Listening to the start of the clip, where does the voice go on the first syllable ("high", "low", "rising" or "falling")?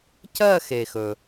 falling